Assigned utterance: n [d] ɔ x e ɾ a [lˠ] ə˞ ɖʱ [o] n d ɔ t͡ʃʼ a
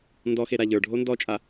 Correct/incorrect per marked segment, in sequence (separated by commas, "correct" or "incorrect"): correct, incorrect, correct